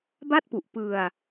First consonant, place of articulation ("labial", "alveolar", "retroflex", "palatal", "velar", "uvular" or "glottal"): labial